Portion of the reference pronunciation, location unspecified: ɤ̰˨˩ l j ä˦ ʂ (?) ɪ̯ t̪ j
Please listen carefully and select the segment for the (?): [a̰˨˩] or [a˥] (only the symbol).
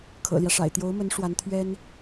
a̰˨˩